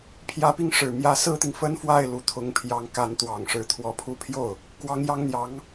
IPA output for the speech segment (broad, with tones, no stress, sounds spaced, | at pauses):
pʰ j ä˧˥ p i˥˩ ŋ ʂ ɻ̩˨˩ m j ä˧˥ s ɹ̩˥ t̪ i˨ ŋ f ə˥ n f w a˥˩ ɪ̯ l u˧˥ t̪ʰ ʊ˧˥ ŋ pʰ j ɑ˧˥ ŋ k a˧˥ n t̪ w ɑ˨˩ ŋ ʂ ɻ̩˧˥ t̪ʰ w ɔ˧˥ pʰ u˥ pʰ j o˥˩ ʊ̯ | k w ɑ˧˥ ŋ j ɑ˧˥ ŋ n̪ j ɑ˧˥ ŋ